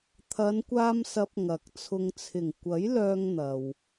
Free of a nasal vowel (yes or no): yes